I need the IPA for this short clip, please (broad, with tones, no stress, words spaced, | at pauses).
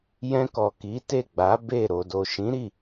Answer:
jɛ̃˧kɔ˨ ki˨˦te˦˨ɡ͡ba˨˦ be˦˨ ɾo˨do˨ʃĩ˨˦ ɾi˦˨